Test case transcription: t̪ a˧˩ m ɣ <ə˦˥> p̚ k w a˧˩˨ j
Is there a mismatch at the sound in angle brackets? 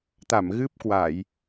yes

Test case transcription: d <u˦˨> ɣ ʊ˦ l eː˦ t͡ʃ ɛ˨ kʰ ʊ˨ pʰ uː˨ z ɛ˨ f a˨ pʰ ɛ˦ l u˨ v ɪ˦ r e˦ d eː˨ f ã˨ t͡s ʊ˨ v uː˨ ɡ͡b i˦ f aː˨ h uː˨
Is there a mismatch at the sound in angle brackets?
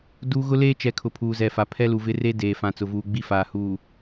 yes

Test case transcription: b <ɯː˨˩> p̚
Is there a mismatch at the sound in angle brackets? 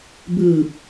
no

